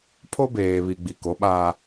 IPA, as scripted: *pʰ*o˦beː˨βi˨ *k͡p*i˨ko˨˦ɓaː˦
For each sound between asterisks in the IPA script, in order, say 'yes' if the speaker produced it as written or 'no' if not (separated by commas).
yes, no